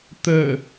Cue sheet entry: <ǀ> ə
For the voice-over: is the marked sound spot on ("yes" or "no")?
no